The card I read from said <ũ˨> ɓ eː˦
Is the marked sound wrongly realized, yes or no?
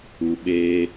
yes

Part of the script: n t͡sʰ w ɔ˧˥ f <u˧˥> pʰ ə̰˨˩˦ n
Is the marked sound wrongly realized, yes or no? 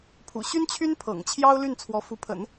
no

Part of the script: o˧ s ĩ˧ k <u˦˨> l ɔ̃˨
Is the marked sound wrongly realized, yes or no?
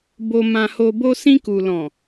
yes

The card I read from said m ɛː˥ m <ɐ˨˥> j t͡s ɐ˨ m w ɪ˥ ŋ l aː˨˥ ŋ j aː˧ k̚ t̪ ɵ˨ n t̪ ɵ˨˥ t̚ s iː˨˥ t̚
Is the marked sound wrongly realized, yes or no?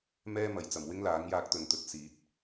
no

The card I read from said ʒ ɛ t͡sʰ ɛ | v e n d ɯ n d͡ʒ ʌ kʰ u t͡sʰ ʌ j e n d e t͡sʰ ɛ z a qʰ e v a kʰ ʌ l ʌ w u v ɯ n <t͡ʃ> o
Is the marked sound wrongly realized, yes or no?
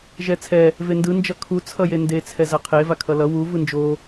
yes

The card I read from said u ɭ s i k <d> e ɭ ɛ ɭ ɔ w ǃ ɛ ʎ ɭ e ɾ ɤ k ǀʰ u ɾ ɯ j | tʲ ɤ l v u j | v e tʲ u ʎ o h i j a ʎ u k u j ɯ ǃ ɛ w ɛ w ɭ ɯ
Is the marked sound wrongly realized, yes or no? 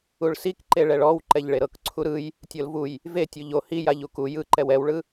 yes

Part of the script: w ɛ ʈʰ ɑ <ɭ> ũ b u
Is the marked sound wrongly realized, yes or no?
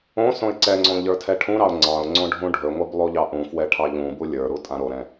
yes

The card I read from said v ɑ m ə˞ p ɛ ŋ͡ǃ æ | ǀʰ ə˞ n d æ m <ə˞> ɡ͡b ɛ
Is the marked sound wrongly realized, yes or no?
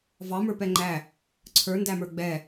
no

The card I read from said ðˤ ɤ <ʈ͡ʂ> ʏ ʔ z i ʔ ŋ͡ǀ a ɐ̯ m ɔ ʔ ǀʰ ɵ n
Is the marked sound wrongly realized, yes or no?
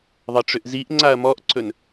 no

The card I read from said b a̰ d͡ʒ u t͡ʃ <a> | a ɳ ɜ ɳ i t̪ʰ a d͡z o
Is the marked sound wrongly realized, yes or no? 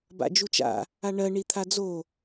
yes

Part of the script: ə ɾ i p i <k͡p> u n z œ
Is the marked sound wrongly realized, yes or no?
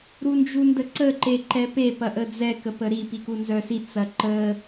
yes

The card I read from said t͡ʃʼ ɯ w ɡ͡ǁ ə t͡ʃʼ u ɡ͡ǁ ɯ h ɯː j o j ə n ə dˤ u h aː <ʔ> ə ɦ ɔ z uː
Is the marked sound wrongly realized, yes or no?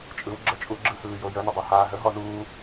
yes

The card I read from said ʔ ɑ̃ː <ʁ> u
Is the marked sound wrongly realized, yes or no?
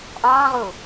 no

